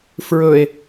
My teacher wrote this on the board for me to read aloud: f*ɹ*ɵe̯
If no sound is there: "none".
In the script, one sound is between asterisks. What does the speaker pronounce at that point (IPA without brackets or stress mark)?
ɹ